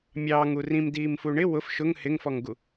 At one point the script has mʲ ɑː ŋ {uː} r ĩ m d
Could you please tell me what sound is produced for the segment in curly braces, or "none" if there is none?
u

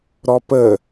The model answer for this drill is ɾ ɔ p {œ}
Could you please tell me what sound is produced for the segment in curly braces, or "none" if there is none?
ə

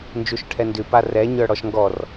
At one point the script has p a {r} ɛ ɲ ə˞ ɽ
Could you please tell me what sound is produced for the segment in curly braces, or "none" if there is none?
r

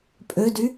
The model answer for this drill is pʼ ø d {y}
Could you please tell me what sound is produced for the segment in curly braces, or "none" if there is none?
y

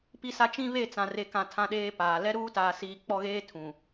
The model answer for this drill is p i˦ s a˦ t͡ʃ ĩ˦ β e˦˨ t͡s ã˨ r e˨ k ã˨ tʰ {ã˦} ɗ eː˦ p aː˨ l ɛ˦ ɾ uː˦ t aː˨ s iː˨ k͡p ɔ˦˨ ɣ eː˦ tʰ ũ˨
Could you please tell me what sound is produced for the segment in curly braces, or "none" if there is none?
ã˦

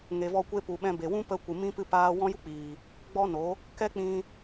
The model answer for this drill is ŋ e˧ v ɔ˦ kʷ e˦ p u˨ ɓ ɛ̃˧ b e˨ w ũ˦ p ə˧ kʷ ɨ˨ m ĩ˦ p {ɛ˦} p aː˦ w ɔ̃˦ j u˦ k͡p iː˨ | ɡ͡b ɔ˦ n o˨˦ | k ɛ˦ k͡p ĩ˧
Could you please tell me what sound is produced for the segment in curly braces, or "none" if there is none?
ɨ˦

